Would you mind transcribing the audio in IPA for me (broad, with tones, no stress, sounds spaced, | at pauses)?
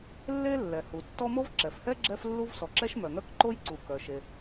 lː e˥ lː ɛ˩ h u˩ tː ɔ˥ m o˥ v ǁ ɛ˩ f h ɛ˥ ɡ͡ǁ ɛ˥ f lː u˥ v s ɔ˩ ǁ ɛ˥ ʃ m œ˩ ŋ œ˥ k ǃ o˥ j ǀ u˩ k œ˩ ʃ e˩